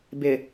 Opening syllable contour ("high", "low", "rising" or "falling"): low